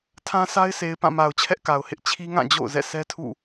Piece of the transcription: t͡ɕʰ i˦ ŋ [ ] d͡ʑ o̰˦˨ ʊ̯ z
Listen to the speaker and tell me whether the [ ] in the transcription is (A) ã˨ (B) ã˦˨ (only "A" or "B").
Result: B